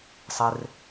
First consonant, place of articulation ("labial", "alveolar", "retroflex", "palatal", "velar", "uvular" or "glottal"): alveolar